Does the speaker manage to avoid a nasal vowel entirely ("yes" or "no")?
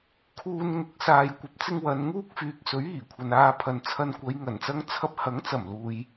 yes